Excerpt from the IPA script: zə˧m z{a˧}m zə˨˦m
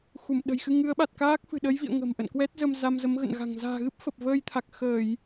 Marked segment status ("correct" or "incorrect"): correct